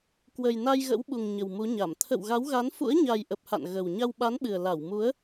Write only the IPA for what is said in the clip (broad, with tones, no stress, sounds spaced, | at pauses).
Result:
k w ə˨˩ j n a˧ j ɣ ə̰˧˥ w ɓ u˨˩ ŋ ɲ ə˨˩ w m u˨˦ ɲ a˧˩ m t̪ʰ ə̰˧˨ w ɣ a˨˦ w ɣ a˨˦ n f ṵ˧˥ ə̯ ɲ a˨˩ j ʔ ə˨˩ p̚ h a̰˧˨ n ɣ ə˨˩ w ɲ a˧ w ɓ a˨˦ n ɓ ɨ˨˩ ə̯ l a˧˩ w m u˨˦ ə̯